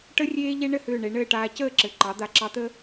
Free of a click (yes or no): no